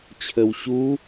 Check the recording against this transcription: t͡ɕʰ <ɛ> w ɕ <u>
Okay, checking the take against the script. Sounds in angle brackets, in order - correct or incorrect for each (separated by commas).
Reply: incorrect, correct